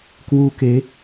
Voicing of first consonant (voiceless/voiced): voiceless